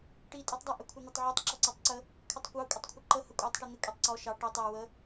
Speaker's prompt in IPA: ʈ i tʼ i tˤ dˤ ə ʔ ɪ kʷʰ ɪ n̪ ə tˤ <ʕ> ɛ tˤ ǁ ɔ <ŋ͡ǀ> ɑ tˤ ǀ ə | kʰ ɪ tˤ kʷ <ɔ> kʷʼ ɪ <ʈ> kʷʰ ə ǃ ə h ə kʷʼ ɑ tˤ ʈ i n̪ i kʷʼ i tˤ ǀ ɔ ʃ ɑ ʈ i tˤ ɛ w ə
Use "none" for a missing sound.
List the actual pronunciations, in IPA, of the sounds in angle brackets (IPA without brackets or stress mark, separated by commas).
ʕ, ǀ, ɑ, tˤ